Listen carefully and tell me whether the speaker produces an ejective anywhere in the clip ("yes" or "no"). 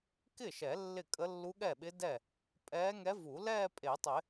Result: yes